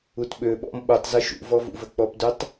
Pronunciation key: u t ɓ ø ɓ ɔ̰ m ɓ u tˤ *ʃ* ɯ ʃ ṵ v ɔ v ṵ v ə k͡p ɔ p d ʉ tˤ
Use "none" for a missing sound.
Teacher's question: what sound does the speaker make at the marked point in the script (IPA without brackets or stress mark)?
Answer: z